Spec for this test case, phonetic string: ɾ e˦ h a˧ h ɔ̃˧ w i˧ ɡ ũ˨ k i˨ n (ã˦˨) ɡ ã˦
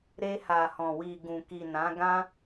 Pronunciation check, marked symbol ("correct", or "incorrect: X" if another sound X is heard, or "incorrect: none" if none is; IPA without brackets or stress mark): incorrect: ã˨˦